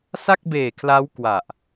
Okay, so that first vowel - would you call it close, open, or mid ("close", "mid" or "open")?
open